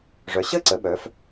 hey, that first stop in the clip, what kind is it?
click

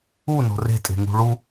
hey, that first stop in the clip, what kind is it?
ejective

